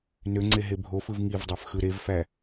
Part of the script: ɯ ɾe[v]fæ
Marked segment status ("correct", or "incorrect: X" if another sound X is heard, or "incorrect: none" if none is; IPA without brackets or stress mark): correct